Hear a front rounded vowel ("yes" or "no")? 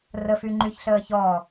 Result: yes